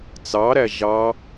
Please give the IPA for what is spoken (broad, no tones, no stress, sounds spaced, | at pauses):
t͡s ɑ ɾ æ ʒ ɑ